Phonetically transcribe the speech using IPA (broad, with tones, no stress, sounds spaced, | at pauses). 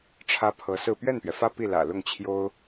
ʈ͡ʂʰ ä˥ pʰ ɤ˧˥ s ɹ̩˥˧ p ɥ ɛ˥˩ n p ɥ ɛ˩ f ä˥˧ p i˥˩ l ä̰˨˩ l ʊ˥˩ ŋ t͡ɕʰ j o˥ ʊ̯